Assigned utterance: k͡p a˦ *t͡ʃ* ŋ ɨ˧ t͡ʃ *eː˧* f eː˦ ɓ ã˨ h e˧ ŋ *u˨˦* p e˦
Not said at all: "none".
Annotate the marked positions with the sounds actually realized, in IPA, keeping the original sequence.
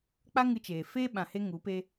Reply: none, eː˨, u˨˦

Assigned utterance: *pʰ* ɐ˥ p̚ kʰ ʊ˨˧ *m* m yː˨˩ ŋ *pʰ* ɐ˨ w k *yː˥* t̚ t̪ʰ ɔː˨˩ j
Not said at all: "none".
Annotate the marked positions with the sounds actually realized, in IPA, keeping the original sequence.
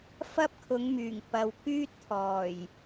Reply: f, ŋ, p, yː˥

